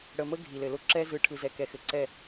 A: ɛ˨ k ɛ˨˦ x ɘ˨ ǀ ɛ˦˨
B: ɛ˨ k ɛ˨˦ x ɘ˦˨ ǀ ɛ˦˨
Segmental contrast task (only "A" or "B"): A